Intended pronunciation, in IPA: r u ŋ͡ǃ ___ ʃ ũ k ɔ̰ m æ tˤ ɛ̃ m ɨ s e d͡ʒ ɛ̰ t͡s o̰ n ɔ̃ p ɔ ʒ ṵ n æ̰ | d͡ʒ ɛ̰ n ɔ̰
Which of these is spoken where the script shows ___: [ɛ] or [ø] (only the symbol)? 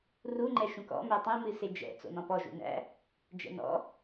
ɛ